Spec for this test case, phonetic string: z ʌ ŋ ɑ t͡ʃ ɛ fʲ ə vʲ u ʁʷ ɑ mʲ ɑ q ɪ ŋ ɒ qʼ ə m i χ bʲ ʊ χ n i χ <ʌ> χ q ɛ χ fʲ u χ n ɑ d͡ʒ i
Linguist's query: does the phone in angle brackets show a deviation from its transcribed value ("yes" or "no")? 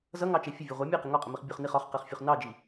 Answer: yes